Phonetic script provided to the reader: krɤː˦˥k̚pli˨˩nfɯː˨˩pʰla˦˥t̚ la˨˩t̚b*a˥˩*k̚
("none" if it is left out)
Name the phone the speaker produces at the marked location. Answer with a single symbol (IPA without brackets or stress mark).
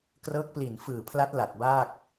a˥˩